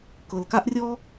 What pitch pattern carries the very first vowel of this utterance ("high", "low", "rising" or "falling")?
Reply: low